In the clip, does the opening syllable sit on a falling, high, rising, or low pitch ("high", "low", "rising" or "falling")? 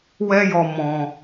high